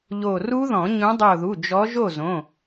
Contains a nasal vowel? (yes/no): yes